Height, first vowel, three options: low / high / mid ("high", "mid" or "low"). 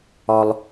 low